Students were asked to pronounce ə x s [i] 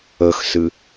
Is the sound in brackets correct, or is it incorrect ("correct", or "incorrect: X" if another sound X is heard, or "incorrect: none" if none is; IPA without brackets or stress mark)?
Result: incorrect: ɨ